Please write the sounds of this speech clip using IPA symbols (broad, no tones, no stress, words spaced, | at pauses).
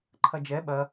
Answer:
ǃʰɐd͡ʒɛ ɓɐ